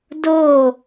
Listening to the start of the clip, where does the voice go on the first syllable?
falling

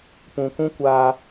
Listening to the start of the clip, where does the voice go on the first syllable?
low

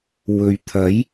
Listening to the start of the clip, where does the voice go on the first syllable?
low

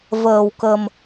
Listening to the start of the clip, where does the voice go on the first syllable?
low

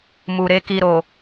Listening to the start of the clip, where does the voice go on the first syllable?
low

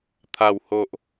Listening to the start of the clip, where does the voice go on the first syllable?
low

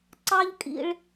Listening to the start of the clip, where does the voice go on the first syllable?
high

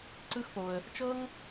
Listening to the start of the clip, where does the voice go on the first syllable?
high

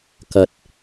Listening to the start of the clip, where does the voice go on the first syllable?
low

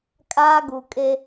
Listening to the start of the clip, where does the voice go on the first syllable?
high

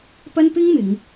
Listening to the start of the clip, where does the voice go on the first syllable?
high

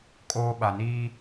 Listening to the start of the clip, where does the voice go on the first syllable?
high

